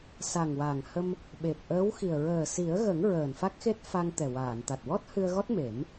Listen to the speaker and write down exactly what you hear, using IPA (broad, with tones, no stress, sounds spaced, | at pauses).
s a˨˩ ŋ w a˨˩ ŋ h ə˧ m | ɓ e˨˩ p̚ ʔ əː˧˥ w x i˨˩ ə̯ ɹ əː˨˩ s i˨˩˦ ə̯ ɣ ə˨˩˦ ŋ ɹ əː˨˩ n f a˦˥ k̚ x e˦˥ t̚ f a˧ ŋ t̪ ɛ˨˩ w aː˨˩˨ n t̪ a˨˩ t̚ w ɔ˦˥ t̚ h ɨ˧ ə̯ ɣ ɔ˦˥ t̚ m e˨˩˦ m